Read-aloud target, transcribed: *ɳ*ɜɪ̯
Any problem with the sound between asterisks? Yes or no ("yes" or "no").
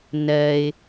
yes